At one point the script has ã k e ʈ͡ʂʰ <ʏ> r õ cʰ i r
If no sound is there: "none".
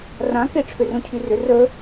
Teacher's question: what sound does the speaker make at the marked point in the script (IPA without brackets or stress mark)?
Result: ʏ